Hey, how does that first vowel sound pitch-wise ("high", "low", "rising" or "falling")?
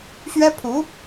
high